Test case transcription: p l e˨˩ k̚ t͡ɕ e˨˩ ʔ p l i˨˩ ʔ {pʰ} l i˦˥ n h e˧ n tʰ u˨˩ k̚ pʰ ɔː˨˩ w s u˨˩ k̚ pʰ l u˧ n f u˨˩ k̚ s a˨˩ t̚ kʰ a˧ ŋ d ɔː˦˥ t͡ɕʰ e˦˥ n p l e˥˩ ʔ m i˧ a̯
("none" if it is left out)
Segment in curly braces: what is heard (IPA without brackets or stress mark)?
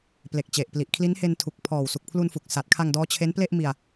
kʰ